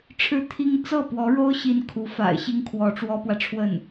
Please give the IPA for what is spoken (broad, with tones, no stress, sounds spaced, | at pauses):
ʈ͡ʂʰ ɻ̩˥˩ t̪ʰ i˥ ŋ t͡s ɤ˥˩ p w ɔ˧˥ ɻ o˥ ʊ̯ ɕ i˥ n kʰ u˧˥ f a̰˨˩ ɪ̯ ɕ i˥ ŋ kʰ w ɔ˧˥ ʈ͡ʂ w ɔ˥ p w ä˨ ʈ͡ʂʰ w ə˥˩ n